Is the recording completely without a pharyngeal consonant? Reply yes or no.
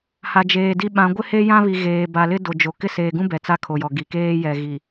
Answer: yes